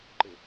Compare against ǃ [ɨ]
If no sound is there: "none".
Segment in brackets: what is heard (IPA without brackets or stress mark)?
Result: ɪ